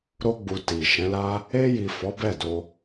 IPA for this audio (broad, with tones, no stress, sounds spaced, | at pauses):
ɾ o˧ ɡ͡b u˨ t i˨ ʃ ɛ̃˨˦ l a˦ | e˧ j i˨ f ɔ˨˦ b ɛ˦˨ d o˧